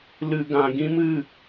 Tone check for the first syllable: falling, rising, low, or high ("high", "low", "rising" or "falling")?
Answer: low